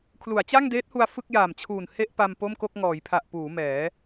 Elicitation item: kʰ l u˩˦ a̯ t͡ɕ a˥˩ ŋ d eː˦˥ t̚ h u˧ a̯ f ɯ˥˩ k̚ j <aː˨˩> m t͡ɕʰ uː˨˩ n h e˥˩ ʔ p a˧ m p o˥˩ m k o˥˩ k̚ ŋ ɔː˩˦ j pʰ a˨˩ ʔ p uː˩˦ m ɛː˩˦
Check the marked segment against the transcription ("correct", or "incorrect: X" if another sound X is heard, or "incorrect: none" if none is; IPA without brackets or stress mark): correct